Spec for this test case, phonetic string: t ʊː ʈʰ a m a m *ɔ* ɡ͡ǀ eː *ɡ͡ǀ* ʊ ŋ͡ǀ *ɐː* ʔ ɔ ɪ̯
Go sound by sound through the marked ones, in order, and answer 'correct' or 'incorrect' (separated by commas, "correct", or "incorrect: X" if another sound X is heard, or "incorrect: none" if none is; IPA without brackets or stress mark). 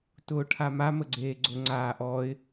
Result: incorrect: ə, correct, incorrect: aː